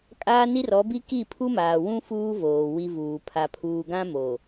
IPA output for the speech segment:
kʼ aː˦ n i˦ r ɔ˨˦ b i˦ k i˦˨ pʰ u˦ m aː˨ w ũ˦ f uː˦ v oː˨ w i˦ v uː˨ pʰ a˨ pʰ uː˨ ɡ ã˦ m o˨

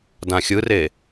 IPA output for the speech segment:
d ã xʲ ɯ r e

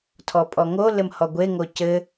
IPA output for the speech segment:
tʰ ɔ pʼ ɔ ŋ o l ɘ m h ɔ ɡʷ e ŋ o c ɘ

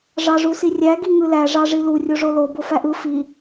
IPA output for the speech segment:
ʐ ɑ ʐ u s i rʲ æ ɡ i ŋ ɯ l æ ʐ ɑ ʐ i l u rʲ o ʐ o l o b o f æ ʔ ɯ f i

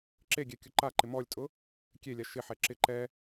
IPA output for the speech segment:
ǁ e ɡʲ ɛ kʲ ʊ ǃ a ǃ ɪ m ɔ lʲ tʼ ʊ | kʲ e lʲ a ʃ ɪ ħ ɛ ǁ ɪ ǃ ɛ

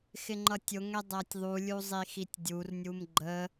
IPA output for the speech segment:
x ɪ ŋ͡ǃ ʌ tʲ ʊ ŋ ɛ dˤ æ tʲ ðˤ u lʲ u zˤ i x i tʲ dʲ u r nʲ u m ɡ͡ǃ ə

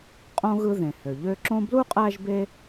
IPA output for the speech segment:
qʼ õ˥ ɣ ɯ˦ ð ẽ˩ h ø˩ ʎ ø˦ ǁ õ˥ b l u˥ qʼ æ˦ ʒ b e˥

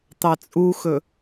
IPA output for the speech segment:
t̪ ɑ t͡sʼ u x ɵ

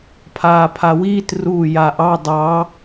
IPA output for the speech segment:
pʰ aː pʰ a w iː t r uː j a ʔ ɑ dˤ ɑ

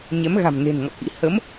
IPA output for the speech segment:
ɲ ɛ˨˦ m ɣ a̤˨˩ m n e̤˨˩ n ŋ ɔ̰˧˨ k ḭ˧˥ h ə˨˦ m

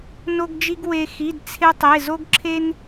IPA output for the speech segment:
n o˥ ɡ d͡ʒ i˥ ɡ w e˥ x i˧˥˧ d t͡sʰ e˥ tˤ e˧˥˧ z o˥ ɡ ǁʰ e˥ n

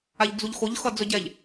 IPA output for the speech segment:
a ʎ d͡z u ʎ x o ʎ x ʌ d͡z ɵ ɟ ɛ ʎ

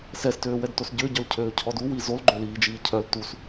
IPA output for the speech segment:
s ɛ s t øː w ɛ d t o s ɟ ø ɟ œ l cʰ øː cʰ ɔ d u w i z o l ɡ͡ǃ ø l iː d͡ʒ iː cʰ œ l t u s

